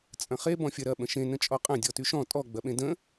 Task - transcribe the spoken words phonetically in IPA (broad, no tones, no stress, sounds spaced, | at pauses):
t͡sʼ ɐ̃ χ e b ɔ̃ fʲ ɐ ɾ ɐ ɓ ə̃ ʃ ẽ n ə̃ t͡ʃʼ ɔ qʼ ɐ̃ dʲ ɔ t y ʃ ɔ̃ tʼ ɔ ɡ͡b ɐ ɓ ẽ d ə̃